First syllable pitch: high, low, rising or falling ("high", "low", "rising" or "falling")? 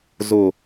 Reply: low